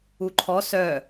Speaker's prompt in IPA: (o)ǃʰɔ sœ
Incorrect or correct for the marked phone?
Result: incorrect: u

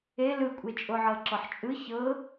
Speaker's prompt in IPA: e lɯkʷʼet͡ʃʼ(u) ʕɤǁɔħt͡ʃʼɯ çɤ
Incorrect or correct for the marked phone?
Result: incorrect: o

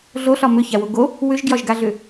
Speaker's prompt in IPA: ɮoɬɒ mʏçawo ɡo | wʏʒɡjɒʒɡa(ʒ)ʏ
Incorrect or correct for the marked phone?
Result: incorrect: ɮ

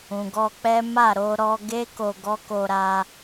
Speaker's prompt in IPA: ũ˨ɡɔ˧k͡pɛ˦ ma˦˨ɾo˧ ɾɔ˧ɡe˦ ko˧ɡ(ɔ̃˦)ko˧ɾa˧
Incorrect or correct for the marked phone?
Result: incorrect: ɔ˦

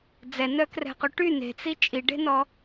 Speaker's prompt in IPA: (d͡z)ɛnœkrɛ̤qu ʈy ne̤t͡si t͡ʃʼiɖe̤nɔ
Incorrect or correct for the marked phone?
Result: correct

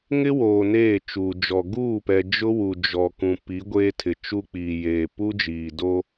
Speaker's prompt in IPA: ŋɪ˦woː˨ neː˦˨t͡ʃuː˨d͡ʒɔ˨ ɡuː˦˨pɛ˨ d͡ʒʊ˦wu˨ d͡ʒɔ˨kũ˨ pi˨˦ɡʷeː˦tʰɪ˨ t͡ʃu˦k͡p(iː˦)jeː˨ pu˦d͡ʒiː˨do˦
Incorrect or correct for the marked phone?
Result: incorrect: iː˨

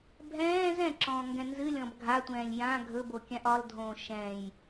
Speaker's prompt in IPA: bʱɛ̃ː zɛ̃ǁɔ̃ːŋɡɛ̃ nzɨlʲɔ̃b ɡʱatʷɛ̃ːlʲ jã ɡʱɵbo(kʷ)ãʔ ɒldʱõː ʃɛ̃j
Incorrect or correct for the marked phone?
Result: incorrect: kʲ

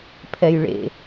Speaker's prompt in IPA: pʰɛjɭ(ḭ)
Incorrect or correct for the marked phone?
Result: incorrect: ḛ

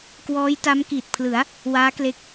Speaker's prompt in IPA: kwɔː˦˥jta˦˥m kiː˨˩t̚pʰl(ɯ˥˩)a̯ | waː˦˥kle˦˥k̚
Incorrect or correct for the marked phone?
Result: incorrect: ɯ˩˦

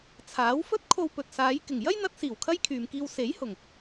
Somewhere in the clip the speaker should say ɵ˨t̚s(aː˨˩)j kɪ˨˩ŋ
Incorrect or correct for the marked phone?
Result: incorrect: aː˨˧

